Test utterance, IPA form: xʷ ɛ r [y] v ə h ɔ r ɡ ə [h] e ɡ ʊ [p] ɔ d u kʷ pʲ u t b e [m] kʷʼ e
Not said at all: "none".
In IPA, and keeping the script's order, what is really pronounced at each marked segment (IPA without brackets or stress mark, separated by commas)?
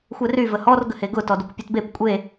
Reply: y, h, t, p